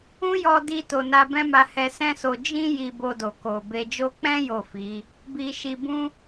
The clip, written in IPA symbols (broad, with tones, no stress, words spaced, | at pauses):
ũ˦jɔ˧di˧to˨ na˧bɛ̃˦ma˧ hɛ˧sɛ̃˦so˧ d͡ʒĩ˦ ji˧bo˧do˨ ko˨be˧ d͡ʒo˦ k͡pɛ̃˦ jo˦˨fi˨˦ | bi˧ʃi˧ bũ˦